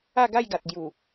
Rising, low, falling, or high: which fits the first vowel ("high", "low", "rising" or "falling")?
falling